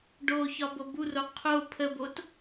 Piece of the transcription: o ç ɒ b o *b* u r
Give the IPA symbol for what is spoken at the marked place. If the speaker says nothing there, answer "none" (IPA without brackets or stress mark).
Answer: b